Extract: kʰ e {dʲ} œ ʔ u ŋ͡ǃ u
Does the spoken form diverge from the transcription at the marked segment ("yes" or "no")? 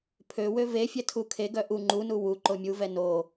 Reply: yes